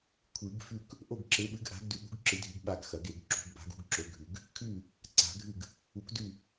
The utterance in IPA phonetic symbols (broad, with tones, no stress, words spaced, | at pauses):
kʷʰɨ˨˩˦ɡfʉ˥˨k | ʔo˥˨ɡǁe˨˥ɓɨ˨˥ɡ ʔa̤˨˥ɡ dʉ˨˩˦ɠṳ˨˥ɡǁɨ˨˩˦dʱi˨˩˦ɡ ɓa˥˨ɡxɐ˨˩˦ɡe˨˩˦ɡ ǁṳ˨˩˦ɡba̤˨˥ɡ ṳ˨˥ɡǁɵ˨˥ɡʱʉ˨˩˦ɡ | kʰʉ˥˨ | ǀa̤˨˩˦ɡʱɨ˥˨ɡ | u˨˥kdʉ˥˨